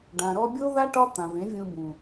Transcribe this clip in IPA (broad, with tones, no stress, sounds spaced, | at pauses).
ɖ ã˨ ɾ ɔ˧ bʲ o˦ ð a˦ ʈ ɒ˦ t̪ ã˨ v ẽ˨˦ vʲ ũ˧ b ũ˨